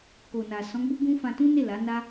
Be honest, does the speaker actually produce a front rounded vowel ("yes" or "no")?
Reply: no